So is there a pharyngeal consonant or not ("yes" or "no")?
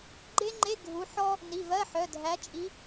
yes